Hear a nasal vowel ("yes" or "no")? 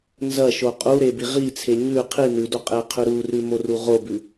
no